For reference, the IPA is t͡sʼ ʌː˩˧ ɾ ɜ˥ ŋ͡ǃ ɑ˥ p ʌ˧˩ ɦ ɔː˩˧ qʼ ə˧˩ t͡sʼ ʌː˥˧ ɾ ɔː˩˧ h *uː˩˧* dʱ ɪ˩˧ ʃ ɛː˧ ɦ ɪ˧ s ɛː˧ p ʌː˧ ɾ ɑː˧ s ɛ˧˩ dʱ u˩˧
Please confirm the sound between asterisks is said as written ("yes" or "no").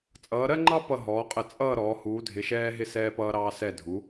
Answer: yes